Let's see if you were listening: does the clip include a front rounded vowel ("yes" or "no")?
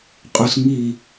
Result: no